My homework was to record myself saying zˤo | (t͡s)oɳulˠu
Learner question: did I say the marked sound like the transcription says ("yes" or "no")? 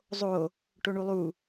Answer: no